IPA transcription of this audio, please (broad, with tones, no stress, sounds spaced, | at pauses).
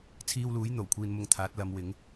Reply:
t͡sʰ iː˧ w l uː˨˥ j n̪ o˨˩ w kʷʰ iː˧ n m ʊ˧ ŋ t̪ʰ aː˨˥ t̚ l ɐ˨˧ m w ɪ˨˥ ŋ